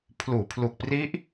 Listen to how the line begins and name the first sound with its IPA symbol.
pʰ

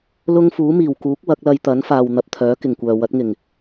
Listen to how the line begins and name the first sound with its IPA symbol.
l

